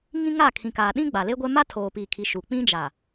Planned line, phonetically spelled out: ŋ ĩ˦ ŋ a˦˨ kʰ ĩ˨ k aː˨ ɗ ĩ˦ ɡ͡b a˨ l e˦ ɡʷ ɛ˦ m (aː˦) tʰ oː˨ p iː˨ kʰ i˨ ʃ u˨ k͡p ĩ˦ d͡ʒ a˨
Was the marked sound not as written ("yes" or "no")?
yes